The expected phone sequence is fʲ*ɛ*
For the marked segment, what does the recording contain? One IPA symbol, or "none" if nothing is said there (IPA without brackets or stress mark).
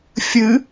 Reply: ɨ